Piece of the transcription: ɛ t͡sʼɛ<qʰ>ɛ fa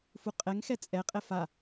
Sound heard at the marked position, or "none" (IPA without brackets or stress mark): qʼ